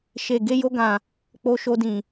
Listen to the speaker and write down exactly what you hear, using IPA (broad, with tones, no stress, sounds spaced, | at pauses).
ʃ e˧ ɡ e˦ j o˦ ɡ ã˧ | k͡p o˦ ʃ o˦ d ĩ˧